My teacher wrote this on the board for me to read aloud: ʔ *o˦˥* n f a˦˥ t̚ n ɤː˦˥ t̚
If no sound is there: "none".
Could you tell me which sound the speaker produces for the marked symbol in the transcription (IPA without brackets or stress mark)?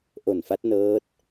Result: o˨˩